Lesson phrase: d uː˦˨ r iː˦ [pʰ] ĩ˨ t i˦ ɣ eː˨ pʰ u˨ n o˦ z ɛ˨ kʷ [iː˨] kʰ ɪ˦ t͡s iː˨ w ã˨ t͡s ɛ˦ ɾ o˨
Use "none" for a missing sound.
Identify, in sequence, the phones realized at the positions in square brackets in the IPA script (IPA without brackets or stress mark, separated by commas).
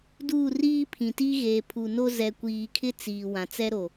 pʰ, iː˨